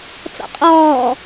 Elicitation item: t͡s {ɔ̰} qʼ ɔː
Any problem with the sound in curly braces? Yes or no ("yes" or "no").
no